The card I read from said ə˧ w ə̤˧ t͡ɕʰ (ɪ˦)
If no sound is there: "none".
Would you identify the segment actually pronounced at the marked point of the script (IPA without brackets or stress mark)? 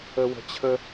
ə˦